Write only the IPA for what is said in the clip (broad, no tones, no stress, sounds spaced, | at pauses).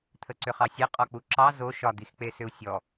t̪ʰ ə ǀ ʏ χ ɑ sʲ e qʼ ɔ k͡p u ǁ ɑ z o ʃ ɒ d̪ i x k͡p e s ʏ u̯ sʲ ɔ